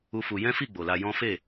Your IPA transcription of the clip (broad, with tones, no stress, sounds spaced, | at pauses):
u˦ f u˧ j ɛ̃˦ f i˦˨ ɡ͡b o˨ l a˧ j ɔ̃˦ f e˦˨